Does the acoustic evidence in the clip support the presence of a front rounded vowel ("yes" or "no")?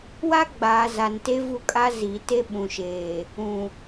no